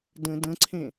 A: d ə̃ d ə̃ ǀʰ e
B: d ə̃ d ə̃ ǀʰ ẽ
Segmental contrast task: B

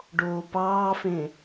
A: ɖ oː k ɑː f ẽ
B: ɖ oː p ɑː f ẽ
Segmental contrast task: B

